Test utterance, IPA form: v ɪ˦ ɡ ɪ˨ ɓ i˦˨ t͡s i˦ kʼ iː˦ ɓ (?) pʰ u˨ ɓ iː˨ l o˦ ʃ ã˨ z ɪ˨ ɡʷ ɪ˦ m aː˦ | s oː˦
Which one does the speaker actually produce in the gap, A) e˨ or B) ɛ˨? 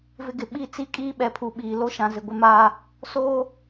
B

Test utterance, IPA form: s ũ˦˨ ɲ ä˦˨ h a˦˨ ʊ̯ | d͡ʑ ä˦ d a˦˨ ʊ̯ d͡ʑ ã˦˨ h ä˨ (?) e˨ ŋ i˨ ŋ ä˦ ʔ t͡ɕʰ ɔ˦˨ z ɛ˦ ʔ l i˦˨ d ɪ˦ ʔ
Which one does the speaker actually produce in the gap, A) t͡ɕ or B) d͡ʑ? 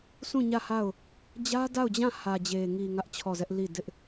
B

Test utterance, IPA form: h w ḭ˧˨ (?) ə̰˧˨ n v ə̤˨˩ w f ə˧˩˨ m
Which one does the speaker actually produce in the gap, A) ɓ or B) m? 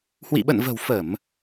A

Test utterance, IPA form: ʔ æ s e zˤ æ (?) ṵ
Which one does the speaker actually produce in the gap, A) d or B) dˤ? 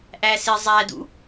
A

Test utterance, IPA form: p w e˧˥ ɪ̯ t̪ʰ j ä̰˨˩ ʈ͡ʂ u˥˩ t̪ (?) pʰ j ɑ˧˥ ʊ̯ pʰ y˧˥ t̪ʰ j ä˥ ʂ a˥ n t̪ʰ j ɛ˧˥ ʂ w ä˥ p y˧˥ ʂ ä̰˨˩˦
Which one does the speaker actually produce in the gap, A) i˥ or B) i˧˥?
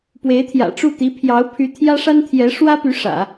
B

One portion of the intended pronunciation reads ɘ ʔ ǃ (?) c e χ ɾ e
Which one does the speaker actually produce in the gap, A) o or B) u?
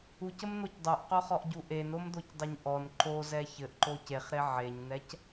A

